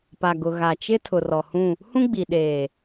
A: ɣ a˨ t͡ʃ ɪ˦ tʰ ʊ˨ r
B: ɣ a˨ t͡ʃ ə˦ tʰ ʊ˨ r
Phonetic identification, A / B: A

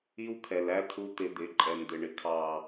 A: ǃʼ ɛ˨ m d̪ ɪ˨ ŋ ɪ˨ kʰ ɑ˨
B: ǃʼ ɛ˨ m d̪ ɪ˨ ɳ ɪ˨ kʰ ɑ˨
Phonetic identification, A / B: B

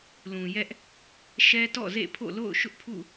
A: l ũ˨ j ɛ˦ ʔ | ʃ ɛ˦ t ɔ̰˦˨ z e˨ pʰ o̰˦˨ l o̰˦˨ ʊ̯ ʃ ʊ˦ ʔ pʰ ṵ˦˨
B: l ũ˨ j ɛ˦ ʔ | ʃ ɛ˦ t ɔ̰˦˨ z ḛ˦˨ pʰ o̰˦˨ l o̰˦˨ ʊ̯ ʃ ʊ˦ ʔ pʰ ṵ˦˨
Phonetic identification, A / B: B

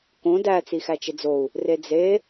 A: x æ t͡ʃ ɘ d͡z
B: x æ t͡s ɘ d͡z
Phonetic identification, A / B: A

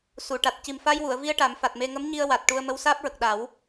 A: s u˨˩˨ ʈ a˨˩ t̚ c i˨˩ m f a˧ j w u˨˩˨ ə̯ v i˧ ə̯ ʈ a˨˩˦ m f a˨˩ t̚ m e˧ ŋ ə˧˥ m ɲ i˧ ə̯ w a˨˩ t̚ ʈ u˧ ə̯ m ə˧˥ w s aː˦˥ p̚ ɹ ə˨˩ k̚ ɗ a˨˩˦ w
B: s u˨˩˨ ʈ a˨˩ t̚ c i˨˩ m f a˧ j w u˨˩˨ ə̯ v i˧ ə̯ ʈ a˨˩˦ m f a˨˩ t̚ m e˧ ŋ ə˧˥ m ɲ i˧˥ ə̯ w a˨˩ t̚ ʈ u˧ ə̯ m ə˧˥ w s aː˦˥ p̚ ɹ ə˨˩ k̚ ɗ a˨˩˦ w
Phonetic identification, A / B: A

